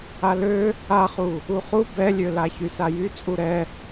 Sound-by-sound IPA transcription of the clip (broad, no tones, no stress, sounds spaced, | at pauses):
a l ø | a χ u | u χ u b ɛ lʲ ø l a ç y s a j y t͡sʼ u ɾ ɛ